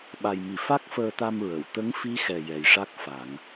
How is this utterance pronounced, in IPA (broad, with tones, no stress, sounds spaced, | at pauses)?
ɓ a˨˩ j m i˨˩˨ f a˦˥ k̚ f əː˧ t̪ a˧ m ɹ ə˨˩˨ w t̪ ə˧˥ ŋ f i˧˥ x ɛ˨˩ j ɛ˨˩ j ʂ a˦˥ k̚ f a˨˩˦ ŋ